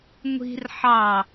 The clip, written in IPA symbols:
ŋʷ i̤ r ħ ɑ

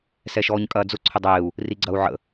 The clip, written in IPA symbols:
s ɛ ʃ ɔː ɲ kʼ ɐː d͡z ʊ ǀʰ ʊ dˤ eː u̯ | r i ɡ͡ǀ ɐ u̯ ʕ ə̰

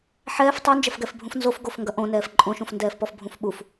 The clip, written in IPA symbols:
ħ ɛː f tˤ o n d͡ʒ ɐ f ɡ ɛ f bʱ ũ f n z o f ɡ o f ŋ ɡ ɐ ʔ õ n ɛː f ǃʼ õ ʃ ũ f n d ɛː f p ɔ f bʱ ũ f ɓ u f

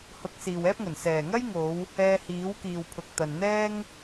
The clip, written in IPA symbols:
h ʊ˨˥ k̚ s iː˨ w ɛː˥ p̚ ŋ ɵ˨˩ n s ɛː˨˩ ŋ ɐ˥ j ŋ o˨˧ w | ɛː˧ h iː˨˥ w k iː˨ w pʰ ʊ˨ k̚ t̪ ɐ˨ n n̪ ɛː˥ ŋ

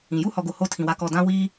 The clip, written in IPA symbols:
ĩ˨ j u˦ h ɔ˨ ɡ o˨ h o˦ tʰ ĩ˨ w a˦ k ɔ˦˨ d ã˦ w iː˦

